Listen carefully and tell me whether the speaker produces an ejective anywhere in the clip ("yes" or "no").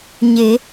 no